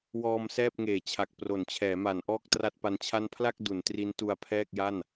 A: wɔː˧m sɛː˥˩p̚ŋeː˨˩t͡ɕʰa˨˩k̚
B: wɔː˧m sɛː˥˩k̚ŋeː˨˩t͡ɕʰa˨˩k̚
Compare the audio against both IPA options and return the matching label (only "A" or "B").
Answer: A